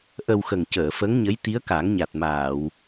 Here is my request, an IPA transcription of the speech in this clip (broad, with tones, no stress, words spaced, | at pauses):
ʔə˧wxə˨˩ŋ cəː˨˩˨fə˧˥ŋɲə˧˥j t̪i˧˥ə̯ka˨˩˦ŋɲa˨˩t̚maː˨˩˨w